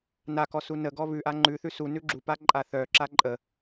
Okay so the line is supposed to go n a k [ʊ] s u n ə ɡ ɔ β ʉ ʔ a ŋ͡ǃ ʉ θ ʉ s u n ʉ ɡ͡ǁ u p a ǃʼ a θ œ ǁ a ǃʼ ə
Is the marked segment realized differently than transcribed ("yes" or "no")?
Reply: yes